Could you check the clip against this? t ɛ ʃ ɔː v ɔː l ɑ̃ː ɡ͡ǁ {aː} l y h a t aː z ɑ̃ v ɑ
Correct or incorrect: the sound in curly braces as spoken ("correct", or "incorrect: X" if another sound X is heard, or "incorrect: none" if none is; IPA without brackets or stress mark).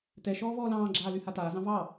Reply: correct